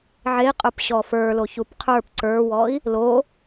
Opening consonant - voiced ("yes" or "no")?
yes